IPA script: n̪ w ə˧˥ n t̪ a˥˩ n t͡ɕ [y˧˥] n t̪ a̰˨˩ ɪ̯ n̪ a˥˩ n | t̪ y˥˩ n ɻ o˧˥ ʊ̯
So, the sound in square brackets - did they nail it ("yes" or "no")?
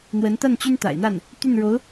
no